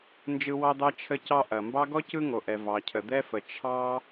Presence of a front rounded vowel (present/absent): absent